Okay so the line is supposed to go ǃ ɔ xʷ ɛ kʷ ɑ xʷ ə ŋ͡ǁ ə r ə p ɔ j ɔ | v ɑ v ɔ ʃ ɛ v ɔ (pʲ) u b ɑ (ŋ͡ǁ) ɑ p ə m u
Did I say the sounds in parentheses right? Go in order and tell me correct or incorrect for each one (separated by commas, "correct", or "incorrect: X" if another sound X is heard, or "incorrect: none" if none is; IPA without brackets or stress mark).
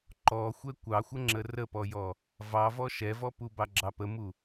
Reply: incorrect: p, incorrect: ɡ͡ǁ